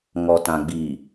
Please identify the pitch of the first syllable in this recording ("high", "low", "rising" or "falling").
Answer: low